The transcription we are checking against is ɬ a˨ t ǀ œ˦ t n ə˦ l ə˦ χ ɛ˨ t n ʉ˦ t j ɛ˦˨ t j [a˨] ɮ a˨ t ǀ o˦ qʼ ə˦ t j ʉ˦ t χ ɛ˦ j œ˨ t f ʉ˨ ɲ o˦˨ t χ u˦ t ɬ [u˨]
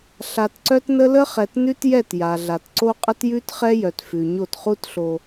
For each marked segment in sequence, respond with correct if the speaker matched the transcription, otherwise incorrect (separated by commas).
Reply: correct, incorrect